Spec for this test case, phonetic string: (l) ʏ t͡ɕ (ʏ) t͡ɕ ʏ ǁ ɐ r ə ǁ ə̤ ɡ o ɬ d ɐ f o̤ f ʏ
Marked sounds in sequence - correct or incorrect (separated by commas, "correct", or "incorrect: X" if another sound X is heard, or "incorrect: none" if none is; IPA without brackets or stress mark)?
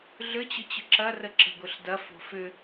incorrect: ɮ, correct